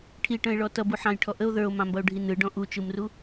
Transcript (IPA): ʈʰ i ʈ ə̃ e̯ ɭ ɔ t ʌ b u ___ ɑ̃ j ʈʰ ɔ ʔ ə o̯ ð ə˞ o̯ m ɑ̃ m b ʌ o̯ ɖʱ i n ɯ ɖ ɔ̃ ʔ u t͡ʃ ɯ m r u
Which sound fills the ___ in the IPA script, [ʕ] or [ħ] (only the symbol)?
ħ